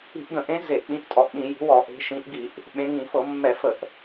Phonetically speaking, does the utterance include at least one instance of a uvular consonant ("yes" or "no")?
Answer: no